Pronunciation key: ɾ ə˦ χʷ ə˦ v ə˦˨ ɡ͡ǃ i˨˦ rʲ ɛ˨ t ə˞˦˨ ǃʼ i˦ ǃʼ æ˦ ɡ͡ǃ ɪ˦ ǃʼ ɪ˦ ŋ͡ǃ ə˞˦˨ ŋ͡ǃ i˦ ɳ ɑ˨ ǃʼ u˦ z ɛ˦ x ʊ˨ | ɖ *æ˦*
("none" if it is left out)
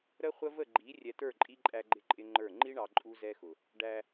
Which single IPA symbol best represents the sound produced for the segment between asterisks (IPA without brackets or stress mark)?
æ˦